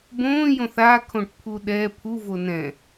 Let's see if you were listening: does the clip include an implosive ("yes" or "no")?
yes